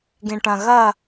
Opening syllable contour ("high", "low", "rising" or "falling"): low